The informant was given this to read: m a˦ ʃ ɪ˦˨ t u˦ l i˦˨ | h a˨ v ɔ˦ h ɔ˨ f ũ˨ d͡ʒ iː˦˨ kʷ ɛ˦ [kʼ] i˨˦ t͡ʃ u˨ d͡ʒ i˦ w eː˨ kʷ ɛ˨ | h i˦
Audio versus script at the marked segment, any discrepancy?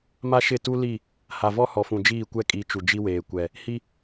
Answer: no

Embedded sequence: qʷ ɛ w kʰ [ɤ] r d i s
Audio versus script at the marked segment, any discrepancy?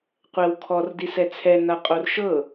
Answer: yes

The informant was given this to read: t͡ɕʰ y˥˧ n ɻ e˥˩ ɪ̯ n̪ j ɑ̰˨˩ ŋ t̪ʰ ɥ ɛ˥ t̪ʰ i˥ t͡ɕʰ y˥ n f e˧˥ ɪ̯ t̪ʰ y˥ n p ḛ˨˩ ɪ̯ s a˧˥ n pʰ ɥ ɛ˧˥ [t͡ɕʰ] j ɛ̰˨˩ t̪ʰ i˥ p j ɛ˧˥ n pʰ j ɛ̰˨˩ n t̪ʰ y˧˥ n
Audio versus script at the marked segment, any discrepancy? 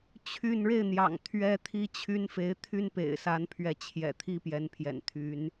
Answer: no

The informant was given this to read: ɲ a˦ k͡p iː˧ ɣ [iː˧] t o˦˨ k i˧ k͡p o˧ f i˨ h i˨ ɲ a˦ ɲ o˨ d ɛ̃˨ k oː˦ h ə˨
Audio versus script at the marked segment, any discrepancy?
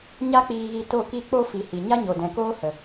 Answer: yes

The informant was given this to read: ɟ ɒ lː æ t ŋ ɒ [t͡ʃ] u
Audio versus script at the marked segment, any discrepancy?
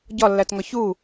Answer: yes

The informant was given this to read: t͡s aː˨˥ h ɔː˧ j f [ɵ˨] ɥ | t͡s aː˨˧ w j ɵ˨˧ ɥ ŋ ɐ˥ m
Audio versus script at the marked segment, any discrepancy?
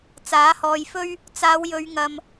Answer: yes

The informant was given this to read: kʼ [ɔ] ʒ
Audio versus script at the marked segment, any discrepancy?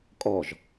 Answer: no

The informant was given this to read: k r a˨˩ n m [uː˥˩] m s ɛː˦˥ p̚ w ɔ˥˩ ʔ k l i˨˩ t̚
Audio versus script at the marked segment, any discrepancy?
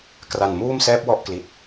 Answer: no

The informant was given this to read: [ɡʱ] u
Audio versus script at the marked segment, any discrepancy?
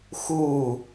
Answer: yes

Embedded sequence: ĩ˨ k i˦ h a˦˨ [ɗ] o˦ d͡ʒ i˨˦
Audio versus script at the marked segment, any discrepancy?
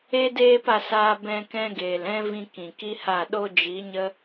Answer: no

